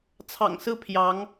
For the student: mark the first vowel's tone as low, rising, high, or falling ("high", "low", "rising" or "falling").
low